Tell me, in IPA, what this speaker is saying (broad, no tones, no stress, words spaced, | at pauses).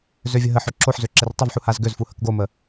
zøvʲəɦəħø ǁoħzø ǁertˤəvħu hazɡøzfu həkɡomə